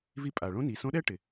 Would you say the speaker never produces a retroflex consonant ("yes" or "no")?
no